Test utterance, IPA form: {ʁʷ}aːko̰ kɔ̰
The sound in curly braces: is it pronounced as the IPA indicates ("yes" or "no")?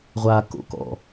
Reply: yes